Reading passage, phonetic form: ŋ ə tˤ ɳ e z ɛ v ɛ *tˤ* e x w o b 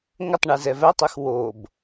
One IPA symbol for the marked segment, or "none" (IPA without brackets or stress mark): tˤ